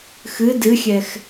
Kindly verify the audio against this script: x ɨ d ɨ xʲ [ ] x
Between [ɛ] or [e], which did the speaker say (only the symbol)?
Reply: ɛ